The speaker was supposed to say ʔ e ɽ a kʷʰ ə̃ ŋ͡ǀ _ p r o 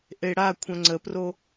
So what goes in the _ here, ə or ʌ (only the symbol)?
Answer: ə